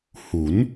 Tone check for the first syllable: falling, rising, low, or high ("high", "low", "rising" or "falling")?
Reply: rising